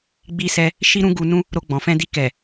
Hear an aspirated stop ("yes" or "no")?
no